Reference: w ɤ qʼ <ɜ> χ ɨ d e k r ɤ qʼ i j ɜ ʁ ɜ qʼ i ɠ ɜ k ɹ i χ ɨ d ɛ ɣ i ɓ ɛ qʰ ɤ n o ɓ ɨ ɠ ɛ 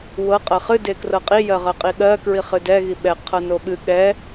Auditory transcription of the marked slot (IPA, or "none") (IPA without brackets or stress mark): ɜ